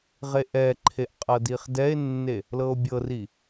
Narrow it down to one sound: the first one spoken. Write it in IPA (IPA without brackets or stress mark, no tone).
ʁ